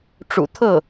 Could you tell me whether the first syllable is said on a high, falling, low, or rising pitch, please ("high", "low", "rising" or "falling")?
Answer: low